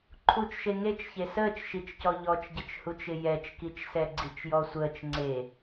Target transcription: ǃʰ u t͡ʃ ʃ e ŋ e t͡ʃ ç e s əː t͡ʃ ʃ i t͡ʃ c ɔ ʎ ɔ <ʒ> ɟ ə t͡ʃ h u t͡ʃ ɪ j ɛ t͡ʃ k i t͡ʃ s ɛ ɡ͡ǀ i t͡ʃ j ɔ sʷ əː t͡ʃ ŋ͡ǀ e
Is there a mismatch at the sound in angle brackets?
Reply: yes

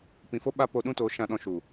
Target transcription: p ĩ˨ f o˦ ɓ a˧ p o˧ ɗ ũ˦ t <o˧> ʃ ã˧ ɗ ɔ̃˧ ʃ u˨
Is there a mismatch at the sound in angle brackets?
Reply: yes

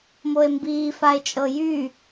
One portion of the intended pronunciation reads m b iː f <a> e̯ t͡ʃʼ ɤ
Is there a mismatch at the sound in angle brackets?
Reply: no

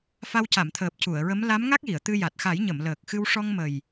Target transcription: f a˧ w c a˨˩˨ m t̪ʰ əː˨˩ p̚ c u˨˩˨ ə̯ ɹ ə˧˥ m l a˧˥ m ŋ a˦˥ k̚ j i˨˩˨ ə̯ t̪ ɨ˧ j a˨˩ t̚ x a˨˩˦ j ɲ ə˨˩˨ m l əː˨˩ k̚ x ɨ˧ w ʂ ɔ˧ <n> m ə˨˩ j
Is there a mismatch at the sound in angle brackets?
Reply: yes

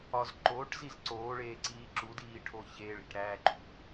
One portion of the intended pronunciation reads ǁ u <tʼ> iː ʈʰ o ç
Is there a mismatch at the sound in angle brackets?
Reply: yes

